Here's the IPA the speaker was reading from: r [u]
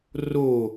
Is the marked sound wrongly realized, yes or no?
yes